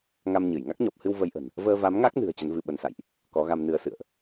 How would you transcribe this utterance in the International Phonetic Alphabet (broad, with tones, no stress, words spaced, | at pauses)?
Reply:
ŋa˧mɲɨ˧˩j ŋa˦˥k̚ɲɔ˨˩p̚hɨ˧w və˧jʔə̤˨˩n | vəː˧va˨˦mŋa˦˥k̚nɨ̤˨˩ə̯ t͡ɕə˨˦nvɨ˧ɓə˨˦nsa̰˧˨jʔ | kɔ˨˦ɣa˧mnɨ˧ə̯sɨ̰˧˨ə̯ʔ